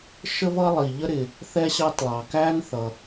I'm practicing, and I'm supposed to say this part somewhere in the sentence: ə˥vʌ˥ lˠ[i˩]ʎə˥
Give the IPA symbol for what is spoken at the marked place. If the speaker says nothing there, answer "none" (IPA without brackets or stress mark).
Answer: i˩